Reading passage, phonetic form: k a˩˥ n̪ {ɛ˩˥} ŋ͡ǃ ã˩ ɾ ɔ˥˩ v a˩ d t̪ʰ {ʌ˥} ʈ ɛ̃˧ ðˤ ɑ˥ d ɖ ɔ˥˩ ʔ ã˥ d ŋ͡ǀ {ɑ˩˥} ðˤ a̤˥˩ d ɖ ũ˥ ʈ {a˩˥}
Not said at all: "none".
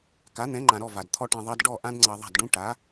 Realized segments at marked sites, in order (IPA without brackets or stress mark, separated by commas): ɛ̃˩˥, ɔ˥, ɑ˧, a˩˥